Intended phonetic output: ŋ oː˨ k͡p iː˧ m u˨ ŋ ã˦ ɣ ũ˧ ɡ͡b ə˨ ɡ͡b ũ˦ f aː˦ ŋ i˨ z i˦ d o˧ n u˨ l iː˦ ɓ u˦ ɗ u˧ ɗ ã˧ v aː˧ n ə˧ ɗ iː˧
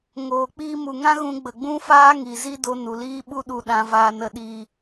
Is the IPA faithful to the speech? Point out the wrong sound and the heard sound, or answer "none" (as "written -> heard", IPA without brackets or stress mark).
none